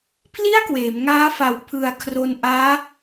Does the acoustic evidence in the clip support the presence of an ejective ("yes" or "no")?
no